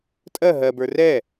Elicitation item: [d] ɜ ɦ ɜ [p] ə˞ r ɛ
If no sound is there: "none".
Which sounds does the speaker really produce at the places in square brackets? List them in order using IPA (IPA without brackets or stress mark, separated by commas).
tʼ, b